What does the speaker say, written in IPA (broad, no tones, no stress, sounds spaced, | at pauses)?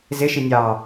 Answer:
z ɪ ʃ i nʲ ɑ